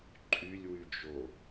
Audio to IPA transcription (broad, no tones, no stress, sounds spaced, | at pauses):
ǃʼ y lʲ w y d͡ʒ o